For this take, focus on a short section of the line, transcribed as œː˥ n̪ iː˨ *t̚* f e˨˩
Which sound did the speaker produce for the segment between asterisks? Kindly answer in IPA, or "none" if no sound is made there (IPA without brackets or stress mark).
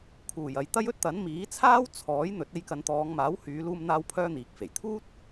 k̚